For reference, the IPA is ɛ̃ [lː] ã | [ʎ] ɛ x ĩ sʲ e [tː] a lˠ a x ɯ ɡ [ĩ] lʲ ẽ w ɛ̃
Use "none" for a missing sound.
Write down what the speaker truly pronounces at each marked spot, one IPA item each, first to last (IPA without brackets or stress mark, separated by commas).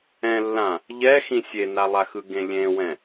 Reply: lː, ʎ, n, ẽ